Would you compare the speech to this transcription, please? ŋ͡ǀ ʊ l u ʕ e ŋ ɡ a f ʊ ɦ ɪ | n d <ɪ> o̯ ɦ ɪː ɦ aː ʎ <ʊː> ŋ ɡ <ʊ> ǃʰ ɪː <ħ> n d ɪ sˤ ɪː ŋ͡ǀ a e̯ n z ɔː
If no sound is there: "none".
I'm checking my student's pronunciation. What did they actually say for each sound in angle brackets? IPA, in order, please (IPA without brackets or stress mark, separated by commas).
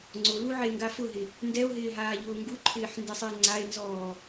ɛ, ʊː, u, ħ